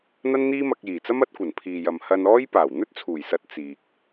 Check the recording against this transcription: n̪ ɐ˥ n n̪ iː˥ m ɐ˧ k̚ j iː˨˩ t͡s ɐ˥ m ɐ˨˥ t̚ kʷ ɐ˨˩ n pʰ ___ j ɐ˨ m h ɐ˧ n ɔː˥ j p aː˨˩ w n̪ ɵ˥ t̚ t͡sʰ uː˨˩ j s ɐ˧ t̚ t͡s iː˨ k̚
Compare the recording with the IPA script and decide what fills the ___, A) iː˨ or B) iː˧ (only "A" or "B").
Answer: A